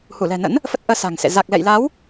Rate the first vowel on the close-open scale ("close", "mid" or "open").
close